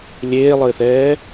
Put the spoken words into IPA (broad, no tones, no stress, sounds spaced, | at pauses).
lʲ eː lˠ ɘː θ ɛː